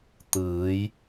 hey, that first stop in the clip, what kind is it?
plain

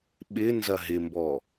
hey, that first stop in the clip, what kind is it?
implosive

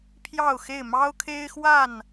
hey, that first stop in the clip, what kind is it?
aspirated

